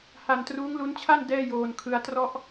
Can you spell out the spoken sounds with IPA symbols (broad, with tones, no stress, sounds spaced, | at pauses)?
h a˧ n t r uː˦˥ ŋ l u˦˥ n t͡ɕʰ a˥˩ n d ɛː˥˩ j oː˧ n kʰ ɯ˦˥ a̯ t r ɔ˥˩ ʔ